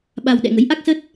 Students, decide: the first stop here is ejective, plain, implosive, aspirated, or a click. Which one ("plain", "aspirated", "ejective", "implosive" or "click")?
implosive